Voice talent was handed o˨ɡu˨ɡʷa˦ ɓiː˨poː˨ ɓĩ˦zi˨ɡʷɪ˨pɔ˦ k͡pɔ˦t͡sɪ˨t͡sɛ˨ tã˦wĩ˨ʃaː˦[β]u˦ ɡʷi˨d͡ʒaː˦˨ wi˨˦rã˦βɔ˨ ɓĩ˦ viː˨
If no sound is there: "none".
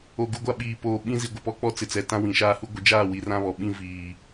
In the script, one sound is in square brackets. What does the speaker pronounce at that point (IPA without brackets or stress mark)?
h